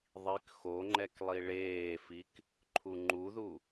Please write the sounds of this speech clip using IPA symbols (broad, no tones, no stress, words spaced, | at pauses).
ðˤik xoŋ͡ǃɛk lˠiɭeːfik | ǃʰuŋ͡ǃuðu